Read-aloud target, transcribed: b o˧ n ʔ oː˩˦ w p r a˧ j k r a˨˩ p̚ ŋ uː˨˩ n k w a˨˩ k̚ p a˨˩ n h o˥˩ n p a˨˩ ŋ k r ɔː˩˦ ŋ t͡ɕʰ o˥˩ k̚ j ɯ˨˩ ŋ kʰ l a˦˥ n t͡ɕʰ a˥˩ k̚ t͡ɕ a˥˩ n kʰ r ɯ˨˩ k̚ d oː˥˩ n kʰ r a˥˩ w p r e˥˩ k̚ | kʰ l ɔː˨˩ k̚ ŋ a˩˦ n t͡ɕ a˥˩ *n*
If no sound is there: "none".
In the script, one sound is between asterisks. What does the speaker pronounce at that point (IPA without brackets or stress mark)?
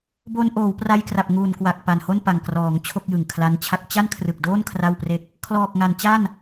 n